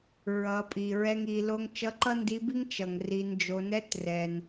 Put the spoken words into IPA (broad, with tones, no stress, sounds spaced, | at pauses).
ɹ ʌ˩˧ pʼ i˩ ɹ ɛ˧ ŋ i˩˧ l o˧ ŋ t͡ʃ ʌ˧˥ ǃ ʌ˥ n d i˧˥ b i˥ ŋ t͡ʃ ʌ˩ ŋ r i˩˧ n d͡ʒ o˩˧ n ɛ˧˥ t r ɛ˩ n